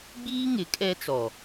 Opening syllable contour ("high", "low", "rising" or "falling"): high